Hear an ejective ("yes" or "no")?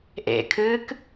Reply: no